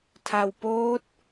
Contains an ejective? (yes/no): no